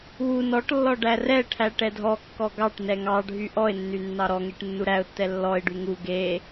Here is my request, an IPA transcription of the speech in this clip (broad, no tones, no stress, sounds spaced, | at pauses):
w u n ɔ ʈ lː ɔ ɖ æ r ɛ ʈʰ æ ʈ ɛ dʱ ɔ kː ɔ ɡ ɑ ʈ n ɛ ŋ ɑ ɖʱ y ʔ ɔ ɪ̯ nː y nː ɑ ɾ ɔ ŋ e ʈ nː u ɾ æ ʊ̯ tː ɛ lː ɔ ɪ̯ ɖ y ŋ u ɡ e